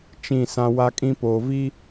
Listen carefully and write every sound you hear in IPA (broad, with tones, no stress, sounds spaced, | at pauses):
t͡ʃ ĩ˦˨ s ã˦ w a˦ kʼ ĩ˦ p oː˨ v i˦